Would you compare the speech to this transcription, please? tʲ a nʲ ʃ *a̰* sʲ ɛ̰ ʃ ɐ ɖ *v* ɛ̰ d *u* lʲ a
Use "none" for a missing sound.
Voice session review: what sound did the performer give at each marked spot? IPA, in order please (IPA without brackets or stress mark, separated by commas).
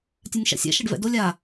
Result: a̰, v, o